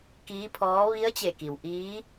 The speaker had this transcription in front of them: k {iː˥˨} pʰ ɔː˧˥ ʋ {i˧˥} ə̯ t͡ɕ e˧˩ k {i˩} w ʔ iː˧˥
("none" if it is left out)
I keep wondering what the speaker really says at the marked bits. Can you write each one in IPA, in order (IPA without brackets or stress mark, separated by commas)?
iː˧˥, i˧˥, i˩